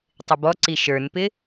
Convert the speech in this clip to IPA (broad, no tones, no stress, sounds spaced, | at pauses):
tˤ ɪ b ɔ ǀ i ʃ ə˞ n p ɪ